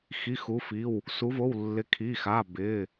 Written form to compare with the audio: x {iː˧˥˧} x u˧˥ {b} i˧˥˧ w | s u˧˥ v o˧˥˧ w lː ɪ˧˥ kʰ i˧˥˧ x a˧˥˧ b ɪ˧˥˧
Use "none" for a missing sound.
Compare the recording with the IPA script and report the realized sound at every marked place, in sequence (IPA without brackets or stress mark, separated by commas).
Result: i˧˥˧, f